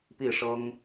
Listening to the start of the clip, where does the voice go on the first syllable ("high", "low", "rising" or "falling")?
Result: falling